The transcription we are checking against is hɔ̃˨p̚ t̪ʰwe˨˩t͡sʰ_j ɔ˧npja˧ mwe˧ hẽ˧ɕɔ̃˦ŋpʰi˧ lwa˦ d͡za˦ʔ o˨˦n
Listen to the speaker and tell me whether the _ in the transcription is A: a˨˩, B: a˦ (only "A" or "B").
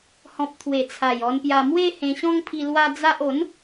A